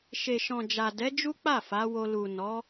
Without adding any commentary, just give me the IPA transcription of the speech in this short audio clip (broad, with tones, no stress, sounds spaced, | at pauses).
ʃ e˨ ʃ ɔ̃˨ d͡ʒ a˨ d ɛ˨˦ d͡ʒ u˦ k͡p a˦˨ f a˨˦ w o˧ l u˨ n ɔ˨˦